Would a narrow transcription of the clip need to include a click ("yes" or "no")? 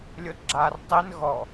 yes